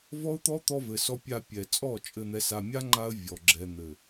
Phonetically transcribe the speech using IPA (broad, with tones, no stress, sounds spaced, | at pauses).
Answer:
v ɔ˦ ʊ̯ t̪ ɔ˦ t̪ ɔ˧ v ɘ˨ s ɔ˧ pʲ a˧ pʲ ɛ˨ t͡sʼ ɔ˦˨ t͡ʃʼ ɘ˧ n̪ ɛ˧ s a˧ mʲ a˦ ŋ͡ǃ a˧ ə̯ vʲ ɔ˨ ɡ͡ǁ ɛ˧ n̪ ɘ˨